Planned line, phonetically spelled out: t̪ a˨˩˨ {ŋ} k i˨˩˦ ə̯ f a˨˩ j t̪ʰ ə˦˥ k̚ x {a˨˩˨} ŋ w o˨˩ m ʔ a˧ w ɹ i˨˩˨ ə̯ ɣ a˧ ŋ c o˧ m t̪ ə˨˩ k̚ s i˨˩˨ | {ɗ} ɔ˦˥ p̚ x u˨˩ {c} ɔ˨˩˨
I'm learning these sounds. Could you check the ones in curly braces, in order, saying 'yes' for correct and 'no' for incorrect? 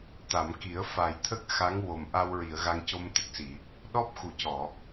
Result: no, no, yes, yes

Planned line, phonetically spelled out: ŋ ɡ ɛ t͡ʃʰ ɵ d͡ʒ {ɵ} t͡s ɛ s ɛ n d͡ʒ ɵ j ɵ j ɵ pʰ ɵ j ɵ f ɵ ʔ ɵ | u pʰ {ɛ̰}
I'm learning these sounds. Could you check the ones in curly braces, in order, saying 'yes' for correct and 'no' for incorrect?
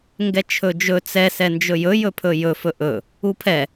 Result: yes, no

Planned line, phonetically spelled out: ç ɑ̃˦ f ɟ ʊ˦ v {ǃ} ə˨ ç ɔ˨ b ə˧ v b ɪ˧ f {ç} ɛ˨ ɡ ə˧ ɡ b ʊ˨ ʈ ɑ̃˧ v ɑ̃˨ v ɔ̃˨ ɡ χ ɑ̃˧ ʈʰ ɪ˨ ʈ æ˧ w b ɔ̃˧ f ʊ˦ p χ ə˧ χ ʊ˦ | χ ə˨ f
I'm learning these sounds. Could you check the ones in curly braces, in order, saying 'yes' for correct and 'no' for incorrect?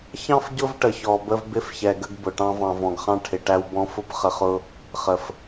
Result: no, yes

